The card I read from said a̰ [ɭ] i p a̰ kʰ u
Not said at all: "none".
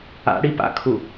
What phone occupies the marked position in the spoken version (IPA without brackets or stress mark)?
ɽ